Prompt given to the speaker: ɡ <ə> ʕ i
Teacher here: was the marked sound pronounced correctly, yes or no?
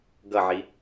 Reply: no